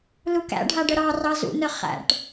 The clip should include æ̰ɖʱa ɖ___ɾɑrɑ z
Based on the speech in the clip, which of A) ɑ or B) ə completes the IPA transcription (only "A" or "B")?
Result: B